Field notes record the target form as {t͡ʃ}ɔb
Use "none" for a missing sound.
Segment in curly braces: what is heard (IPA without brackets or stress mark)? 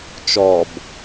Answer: t͡ʃ